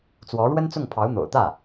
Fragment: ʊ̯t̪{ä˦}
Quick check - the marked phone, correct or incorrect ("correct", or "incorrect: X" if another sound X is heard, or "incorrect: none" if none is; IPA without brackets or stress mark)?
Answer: incorrect: ä˥˩